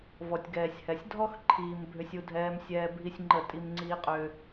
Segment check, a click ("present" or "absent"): present